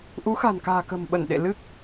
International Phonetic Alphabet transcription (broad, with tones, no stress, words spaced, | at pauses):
ʔu˨˦xa̤˨˩nka̤ː˨˩ kə̤˨˩mɓə˧˩nɗḛ˧˨ lɨ˦˥k̚